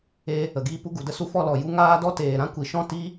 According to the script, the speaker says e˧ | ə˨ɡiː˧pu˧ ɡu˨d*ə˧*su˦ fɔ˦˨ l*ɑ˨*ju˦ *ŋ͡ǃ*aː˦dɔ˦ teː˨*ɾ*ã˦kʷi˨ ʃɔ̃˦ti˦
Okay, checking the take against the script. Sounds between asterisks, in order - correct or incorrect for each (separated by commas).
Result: correct, incorrect, incorrect, correct